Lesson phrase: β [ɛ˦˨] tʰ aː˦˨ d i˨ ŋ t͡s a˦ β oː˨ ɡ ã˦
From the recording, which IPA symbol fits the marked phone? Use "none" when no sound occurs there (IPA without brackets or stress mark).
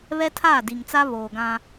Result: ɛ˦